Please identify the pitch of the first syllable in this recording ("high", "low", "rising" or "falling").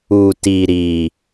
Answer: low